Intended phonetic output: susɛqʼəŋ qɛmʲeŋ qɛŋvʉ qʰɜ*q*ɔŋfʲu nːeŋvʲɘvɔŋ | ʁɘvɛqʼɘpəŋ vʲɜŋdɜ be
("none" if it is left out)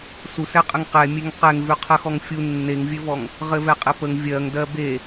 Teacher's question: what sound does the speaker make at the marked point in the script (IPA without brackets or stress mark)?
x